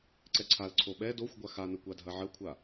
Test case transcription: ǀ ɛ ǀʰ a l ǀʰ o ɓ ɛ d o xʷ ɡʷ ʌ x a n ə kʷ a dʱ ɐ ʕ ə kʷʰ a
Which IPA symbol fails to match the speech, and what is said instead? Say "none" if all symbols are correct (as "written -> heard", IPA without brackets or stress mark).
ʌ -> a